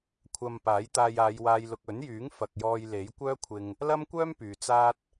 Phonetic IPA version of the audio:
kʷʰɐ˧mpaː˨˥j t̪aː˧jaː˨˧jwaː˧jlʊ˧k̚ ɵ˨˥njyː˨˥ŋ fɐ˨k̚jɔː˧j le˨˥jkʷœː˥kʷʰɪ˧ŋ | lɐ˥mkʷœː˥m pyː˨t͡saː˥t̚

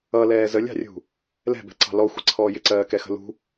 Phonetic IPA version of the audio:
ʌlɛː zəlʲɑ̤rʲṳ | lɛ̤bɛ̤ǀɑ̤ lɔxʷɪǀʰɔː jɪǀɜːkɛxə̤ lṳ

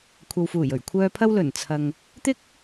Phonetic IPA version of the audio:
kʷʰɐ˨wfuː˨˩j ɵ˨˩ɥkʷʰœː˨pʰɐ˧w lɵ˨˩nt͡sʰɐ˨ŋ | t̪ɪ˥k̚

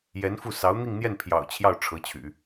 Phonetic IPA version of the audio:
jɛ˧˥nfu˥˩ sɑ˧˥ʊ̯n̪i˥˧ŋn̪jɛ˥˩n pʰjɑ̰˨˩ʊ̯t͡ɕʰjɑ˥˩ʊ̯ ʈ͡ʂʰɤ˧˥t͡ɕʰy̰˨˩˦

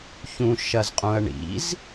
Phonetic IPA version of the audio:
çũʃɐzqʼũɐ̯ɳḭz

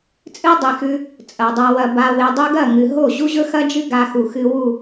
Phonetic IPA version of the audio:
t͡sʼɨ˦dˤi˨xʉ˧ | t͡sʼɐ˨dˤa˧wɐ˧ ba˧we˧dˤʉ˦ ɡɐ˦˨ŋɨ˨ɦo˦˨ ʑu˦ʑɵ˦xɐ˦d͡ʒɨ˦ ɡa˧xu˨xɨ˧ wu˦˨

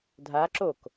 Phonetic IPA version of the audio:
dʱa ǁok

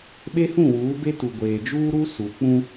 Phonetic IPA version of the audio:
ɓe˦hũ˦˨ wuː˨˦be˦tu˨ɡʷeː˨ d͡ʒuː˦ɾu˦ su˨ k͡pũ˦

